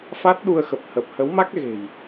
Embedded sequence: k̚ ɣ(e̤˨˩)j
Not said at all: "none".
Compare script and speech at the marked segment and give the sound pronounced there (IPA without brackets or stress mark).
e̤˨˩